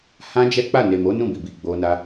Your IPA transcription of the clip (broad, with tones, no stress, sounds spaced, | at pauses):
h ã˦ d͡ʒ ɛ˦ k͡p a˦˨ n e˨ m o˨˦ n ũ˦˨ b i˨ b i˨ ɡ͡b o˧ n a˦